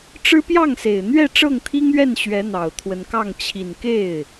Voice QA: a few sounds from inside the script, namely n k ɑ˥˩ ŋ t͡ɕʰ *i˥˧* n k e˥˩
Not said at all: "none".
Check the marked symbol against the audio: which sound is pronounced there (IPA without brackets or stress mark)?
i˨˩